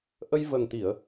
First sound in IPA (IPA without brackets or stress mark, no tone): ʔ